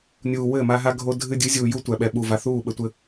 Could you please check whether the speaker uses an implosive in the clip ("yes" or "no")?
yes